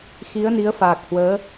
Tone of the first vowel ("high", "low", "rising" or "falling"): rising